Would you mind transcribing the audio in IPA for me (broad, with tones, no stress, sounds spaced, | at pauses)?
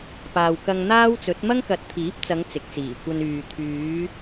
p aː˨ w k ɐ˧ ŋ n̪ aː˥ w t͡s ɵ˨˥ t̚ m ɐ˥ ŋ k ɐ˨˥ t̚ t̪ʰ iː˨˥ p̚ t͡s ɐ˨˧ ŋ t͡s ɪ˨ k̚ t͡s iː˨˩ kʷ ɐ˧ n yː˨ t̪ʰ yː˨˧